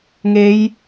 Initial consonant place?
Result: velar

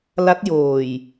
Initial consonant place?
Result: alveolar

